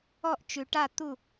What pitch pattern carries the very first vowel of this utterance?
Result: falling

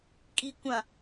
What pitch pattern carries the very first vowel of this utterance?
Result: low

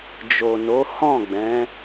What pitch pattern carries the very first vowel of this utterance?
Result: low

